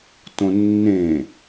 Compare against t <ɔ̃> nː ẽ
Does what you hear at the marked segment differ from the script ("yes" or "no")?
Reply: yes